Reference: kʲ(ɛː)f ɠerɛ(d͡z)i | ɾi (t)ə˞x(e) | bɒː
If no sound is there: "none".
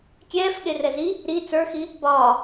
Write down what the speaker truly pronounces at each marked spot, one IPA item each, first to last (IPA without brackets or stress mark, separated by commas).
ɛː, z, t͡s, i